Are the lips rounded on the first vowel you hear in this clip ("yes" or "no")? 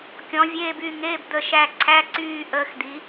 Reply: yes